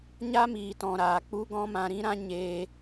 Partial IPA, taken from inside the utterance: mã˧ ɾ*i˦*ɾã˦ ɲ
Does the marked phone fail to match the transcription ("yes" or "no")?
yes